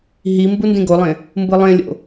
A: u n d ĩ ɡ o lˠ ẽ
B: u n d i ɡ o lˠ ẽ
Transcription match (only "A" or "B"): A